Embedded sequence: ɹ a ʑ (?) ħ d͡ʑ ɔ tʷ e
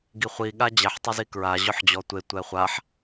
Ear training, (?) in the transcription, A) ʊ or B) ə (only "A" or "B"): A